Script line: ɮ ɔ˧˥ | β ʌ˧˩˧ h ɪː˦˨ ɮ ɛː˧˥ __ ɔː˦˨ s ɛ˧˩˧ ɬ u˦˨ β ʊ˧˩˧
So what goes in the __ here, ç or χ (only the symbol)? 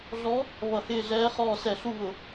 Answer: χ